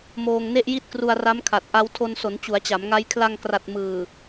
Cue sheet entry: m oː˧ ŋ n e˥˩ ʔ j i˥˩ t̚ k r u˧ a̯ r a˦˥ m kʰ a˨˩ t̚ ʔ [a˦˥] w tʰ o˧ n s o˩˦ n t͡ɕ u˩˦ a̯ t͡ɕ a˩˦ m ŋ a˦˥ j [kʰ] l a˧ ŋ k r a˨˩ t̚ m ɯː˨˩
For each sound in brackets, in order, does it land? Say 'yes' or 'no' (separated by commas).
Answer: yes, yes